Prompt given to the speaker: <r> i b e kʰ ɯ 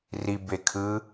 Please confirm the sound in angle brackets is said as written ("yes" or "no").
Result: yes